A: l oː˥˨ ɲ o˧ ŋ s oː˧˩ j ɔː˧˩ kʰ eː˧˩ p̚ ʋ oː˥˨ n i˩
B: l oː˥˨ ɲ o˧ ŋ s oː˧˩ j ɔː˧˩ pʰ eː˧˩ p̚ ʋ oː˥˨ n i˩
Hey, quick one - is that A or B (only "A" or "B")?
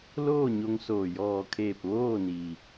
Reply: A